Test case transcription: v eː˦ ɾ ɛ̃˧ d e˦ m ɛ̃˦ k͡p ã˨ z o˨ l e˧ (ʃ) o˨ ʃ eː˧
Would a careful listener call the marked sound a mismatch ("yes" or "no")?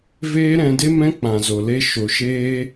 no